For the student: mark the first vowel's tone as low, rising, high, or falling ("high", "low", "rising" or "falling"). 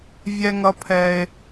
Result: low